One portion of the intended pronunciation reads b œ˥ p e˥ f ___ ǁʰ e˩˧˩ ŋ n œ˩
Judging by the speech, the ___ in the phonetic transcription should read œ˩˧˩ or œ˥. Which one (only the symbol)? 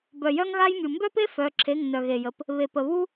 œ˩˧˩